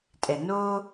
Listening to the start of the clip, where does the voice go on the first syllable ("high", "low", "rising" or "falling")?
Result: low